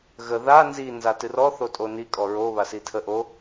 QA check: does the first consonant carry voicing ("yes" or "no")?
yes